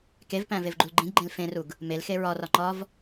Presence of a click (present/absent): present